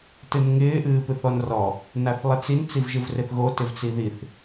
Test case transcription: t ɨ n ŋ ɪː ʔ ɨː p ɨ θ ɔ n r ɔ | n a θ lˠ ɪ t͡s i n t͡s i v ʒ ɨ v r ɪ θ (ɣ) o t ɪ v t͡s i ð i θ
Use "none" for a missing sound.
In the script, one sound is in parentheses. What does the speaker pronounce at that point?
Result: ɣ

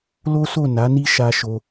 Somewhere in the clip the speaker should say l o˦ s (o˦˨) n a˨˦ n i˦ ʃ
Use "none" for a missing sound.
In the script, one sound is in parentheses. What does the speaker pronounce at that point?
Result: o˦˨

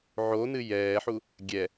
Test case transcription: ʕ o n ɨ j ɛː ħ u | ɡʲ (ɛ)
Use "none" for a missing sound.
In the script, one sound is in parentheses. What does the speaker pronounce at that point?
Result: ɛ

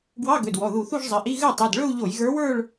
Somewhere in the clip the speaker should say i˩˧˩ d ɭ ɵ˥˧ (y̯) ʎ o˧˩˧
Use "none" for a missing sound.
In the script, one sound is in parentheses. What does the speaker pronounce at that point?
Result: u̯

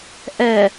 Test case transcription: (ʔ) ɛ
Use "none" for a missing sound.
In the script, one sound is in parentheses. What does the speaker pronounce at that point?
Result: ʔ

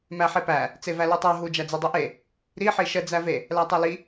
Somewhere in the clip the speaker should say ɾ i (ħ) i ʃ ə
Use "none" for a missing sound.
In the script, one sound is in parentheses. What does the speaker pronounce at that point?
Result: ħ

